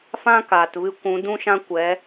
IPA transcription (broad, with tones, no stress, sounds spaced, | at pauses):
f ã˦ k aː˨ t v ɨ˧ kʷ ũ˨˦ d ũ˦ ʃ ã˦ kʷ ɛ˨˦